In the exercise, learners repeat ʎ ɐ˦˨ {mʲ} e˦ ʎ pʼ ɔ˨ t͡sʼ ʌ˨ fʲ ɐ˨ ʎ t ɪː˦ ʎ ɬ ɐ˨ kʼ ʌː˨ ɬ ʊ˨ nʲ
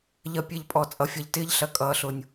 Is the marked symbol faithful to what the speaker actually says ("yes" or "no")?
no